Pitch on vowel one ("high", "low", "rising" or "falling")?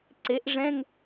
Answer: rising